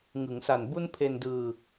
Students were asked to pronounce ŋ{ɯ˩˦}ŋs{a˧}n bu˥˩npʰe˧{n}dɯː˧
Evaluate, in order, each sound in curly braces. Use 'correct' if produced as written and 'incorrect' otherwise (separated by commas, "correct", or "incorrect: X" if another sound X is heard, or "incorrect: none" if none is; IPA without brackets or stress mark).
correct, incorrect: a˨˩, correct